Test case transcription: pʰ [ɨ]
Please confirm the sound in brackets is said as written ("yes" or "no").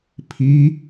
no